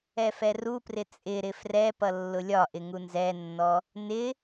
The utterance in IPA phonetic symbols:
ɛ f ɛ r u p r ɪ t͡sʼ ɪ ɾ ɪ f r ɛ p ʌ lː ʊ lʲ ɒ ʔ ɪ ŋ u n z ɛ nː ɔ | n ɪ

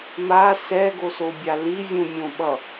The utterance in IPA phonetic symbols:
m a s ɛ ɡ o s o bʲ a l i vʲ ũ mʲ õ ɓ ʌ

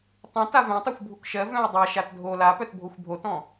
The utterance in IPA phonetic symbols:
tˤ ũ t a v œ̃ tˤ o xʷ bʱ u k ʃ ɜ v œ̃ u̯ dˤ a ʃ a t dʱ o l a p œ t bʱ o xʷ bʱ o t ɔ̃

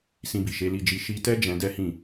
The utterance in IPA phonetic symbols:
s ĩ˧ b i˨ ʃ e˨˦ l i˧ d͡ʒ i˧ ʃ i˧ t ɛ˦ d͡ʒ ɛ̃˧ d ɛ˦ h ĩ˦˨

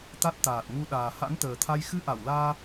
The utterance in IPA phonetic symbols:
t̪ a˦˥ t̚ t̪ aː˨˩ t̚ ŋ u˧ ɗ aː˨˩ h a̰˧˥ n t̪ əː˨˩ t̪ʰ a˧ j x ɨ˧ ʔ a˧˩ w l aː˧

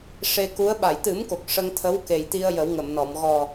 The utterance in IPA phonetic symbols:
ʂ e˧ k u˧˥ ə̯ ɓ a˨˩˨ j t̪ ɨ˨˩˦ m k o˨˩ k̚ ʂ ə˧ ŋ t̪ʰ ə˧˥ w k e˨˩ j t̪ i˧ ə̯ j ə˨˩˦ w ŋ ə˨˩˨ m n ɔ˨˩˨ m ɣ ɔ˨˩

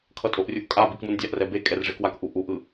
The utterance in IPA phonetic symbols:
kʰ ʌ tʼ o ʔ rʲ u ʔ kʼ a b i k m u n dʲ a ʔ r ɛ b e kʼ ɛ r ʐ e k w a k ʔ u ʔ u ʔ ɯ

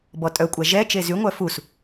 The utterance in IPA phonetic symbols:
b ɔ tʼ œ kʷʼ æ ʒ ɛ t͡ʃ e z y ŋʷ œ f u s

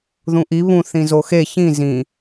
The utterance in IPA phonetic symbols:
ð ũ ʔ i β ũ θ ĩ z o x e ç ĩ z ĩ

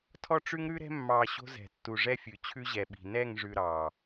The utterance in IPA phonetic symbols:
tʰ ɔ˦ ʈ͡ʂ ʉ˦ ŋ ɾ ʉ˦ ɾ ɛ̤˦ mː ɑ˨ ɕ o̤˦ z ɛ̤˨ tː u˨ ʐ ɛ˦ fʲ ʉ˨ t͡ɕʰ ʉ˦ ʑ ɛ˨ ɓ i̤˨ n ɛ˦˨ ŋ ʐ ʉ˨ ɾ ɑ˨

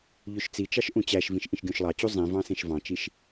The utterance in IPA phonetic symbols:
ʎ ø ʃ t͡s i t͡ʃ ɑ ʃ ʔ ũ t͡ɕ æ ʃ v ĩ ʃ ʔ ĩ ʃ ɡʲ õ ʃ lˠ ɑ t͡ɕ u zˤ ĩ v ɑ̃ s ẽ ʃ v ɑ̃ t͡ʃ i ʃ

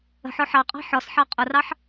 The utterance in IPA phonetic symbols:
ə̤ ħ ɔ ħ ɑ qʼ ɑ̤ ħ ɔ s ħ ɑ qʼ ʊ r ɑ ħ

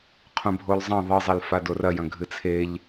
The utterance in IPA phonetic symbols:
qʰ ũ bʱ o l zˤ ɐ̃ ðˤ ɨ zˤ e l f a d o r ɐ j ɐ̃ ɡʱ ɨ t͡sʰ e ʎ

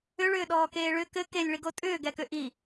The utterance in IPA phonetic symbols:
ʏ ɭ ʏː ɗ ɔː k eː ɭ ʏ k ɘ k e lʲ ɭ i ɡ o tʼ ʏː ɡ ɛ k ʏ ʔ i

